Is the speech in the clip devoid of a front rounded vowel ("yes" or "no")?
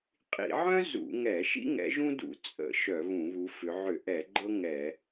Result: no